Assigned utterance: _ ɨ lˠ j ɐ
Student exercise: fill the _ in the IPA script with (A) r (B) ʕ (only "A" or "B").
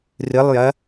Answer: A